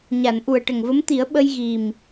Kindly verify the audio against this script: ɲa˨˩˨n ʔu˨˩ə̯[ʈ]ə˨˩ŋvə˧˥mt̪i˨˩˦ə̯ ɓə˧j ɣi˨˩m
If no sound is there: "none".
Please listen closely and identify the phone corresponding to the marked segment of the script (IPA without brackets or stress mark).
ʈ